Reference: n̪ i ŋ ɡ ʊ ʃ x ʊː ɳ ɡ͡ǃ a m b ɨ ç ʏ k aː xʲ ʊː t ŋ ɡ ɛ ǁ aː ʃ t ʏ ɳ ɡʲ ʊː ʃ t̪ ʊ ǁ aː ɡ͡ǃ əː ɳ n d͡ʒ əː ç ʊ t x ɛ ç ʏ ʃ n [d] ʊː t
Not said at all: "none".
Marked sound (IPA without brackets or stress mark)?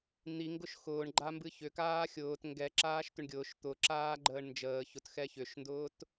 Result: d